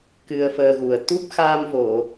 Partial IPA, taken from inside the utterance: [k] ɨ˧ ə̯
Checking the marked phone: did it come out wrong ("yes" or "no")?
no